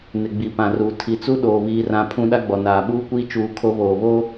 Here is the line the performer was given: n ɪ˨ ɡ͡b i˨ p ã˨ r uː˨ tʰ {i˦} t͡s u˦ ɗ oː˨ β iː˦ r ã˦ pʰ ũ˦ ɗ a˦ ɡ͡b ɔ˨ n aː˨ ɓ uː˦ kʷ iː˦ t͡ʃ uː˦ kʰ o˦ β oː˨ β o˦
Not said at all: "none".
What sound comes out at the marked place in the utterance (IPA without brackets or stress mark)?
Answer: i˨